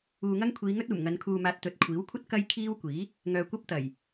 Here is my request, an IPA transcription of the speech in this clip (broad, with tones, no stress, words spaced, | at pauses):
uː˨ŋɐ˥ŋ kʷʰiː˨˧ŋɵ˥t̚uː˨˩mŋɐ˨˧n kʰuː˨maː˨t̚ t̪ɵ˨˥t̚kʷʰiː˨˥wkʷʰɐ˥t̚ kɐ˥jkʰiː˥wkʷiː˨˥ | ŋœː˧kʷɐ˥p̚t̪ɐ˨˩j